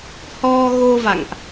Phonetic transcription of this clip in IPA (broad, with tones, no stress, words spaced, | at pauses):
hɔ˧ ɣo˧va̰˧˨ŋʔ